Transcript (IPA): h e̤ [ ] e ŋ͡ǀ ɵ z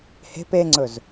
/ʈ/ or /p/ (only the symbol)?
p